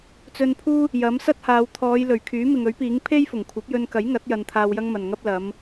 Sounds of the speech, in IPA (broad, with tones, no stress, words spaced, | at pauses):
t͡sɵ˧npʰuː˥ | jɐ˨˥m sɐ˥t̚haː˨˧w t̪ʰɔː˨˧j lɵ˨˩ɥ kʰyː˨˥ mɪ˨ŋɵ˨˥ɥpiː˨˥ŋ pʰe˥jfʊ˨˩ŋkʷʰɐ˨˥p̚jɵ˧n kɐ˨˥jŋɐ˨˥t̚ jɐ˧nt̪ʰaː˧wjɐ˥ŋ mɐ˨nŋɐ˥p̚ lɐ˨˧m